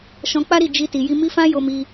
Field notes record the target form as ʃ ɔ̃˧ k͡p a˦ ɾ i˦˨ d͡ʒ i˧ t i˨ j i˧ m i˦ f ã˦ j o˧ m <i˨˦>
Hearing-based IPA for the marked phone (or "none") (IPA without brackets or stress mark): i˧